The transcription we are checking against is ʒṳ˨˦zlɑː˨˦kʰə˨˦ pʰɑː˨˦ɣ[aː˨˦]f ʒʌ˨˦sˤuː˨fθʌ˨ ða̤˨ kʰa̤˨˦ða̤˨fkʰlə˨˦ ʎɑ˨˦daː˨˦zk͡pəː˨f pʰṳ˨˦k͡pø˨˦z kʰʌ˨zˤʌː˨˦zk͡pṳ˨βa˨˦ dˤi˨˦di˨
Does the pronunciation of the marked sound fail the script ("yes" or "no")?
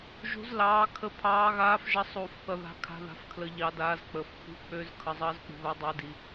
no